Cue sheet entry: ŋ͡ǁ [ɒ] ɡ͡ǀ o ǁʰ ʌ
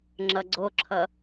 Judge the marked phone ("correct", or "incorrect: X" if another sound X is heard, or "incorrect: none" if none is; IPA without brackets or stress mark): incorrect: ʌ